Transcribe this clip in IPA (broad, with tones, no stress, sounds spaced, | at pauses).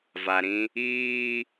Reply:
v a˨ ɾ ĩ˦ | iː˦